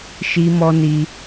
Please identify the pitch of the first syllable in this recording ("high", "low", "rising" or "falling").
high